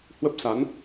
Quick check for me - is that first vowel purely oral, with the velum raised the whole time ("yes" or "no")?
yes